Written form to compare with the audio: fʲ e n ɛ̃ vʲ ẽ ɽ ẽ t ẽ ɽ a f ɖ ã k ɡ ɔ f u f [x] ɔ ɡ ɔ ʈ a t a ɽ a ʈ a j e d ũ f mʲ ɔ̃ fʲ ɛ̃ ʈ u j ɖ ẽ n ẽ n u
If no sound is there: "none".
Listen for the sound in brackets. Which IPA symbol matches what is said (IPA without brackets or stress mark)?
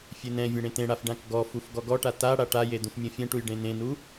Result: ɡ